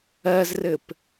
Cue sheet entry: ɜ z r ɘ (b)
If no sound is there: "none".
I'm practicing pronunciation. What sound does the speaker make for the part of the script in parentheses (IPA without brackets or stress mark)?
p